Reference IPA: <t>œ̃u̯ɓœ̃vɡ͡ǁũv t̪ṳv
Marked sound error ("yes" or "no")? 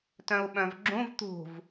no